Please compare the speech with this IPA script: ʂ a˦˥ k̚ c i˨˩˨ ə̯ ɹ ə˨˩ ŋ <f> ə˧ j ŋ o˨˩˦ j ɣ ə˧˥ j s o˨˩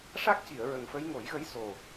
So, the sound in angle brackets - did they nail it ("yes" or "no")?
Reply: yes